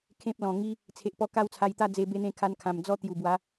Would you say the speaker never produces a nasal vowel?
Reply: no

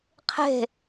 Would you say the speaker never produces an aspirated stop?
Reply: no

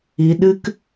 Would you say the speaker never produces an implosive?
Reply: no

